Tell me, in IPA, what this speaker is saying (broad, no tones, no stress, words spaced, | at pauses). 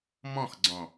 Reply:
mɔ̃xɡ͡ǀɔ̃